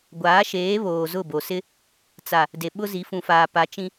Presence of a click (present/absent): absent